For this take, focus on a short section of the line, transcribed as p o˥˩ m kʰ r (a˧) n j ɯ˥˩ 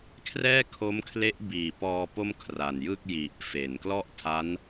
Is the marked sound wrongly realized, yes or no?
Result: yes